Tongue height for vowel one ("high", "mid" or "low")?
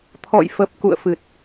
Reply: mid